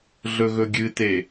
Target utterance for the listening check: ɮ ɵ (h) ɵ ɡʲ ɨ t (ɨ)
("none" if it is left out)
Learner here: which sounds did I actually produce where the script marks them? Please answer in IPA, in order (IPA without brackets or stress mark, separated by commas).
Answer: ɣ, e